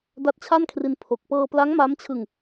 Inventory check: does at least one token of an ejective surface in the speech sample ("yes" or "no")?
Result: no